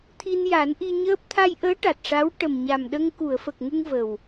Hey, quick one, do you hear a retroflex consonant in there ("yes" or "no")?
yes